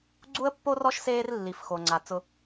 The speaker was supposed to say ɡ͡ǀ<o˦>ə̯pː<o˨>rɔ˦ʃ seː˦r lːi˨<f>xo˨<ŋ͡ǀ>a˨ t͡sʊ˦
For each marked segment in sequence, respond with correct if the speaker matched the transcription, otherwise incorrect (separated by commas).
incorrect, incorrect, correct, correct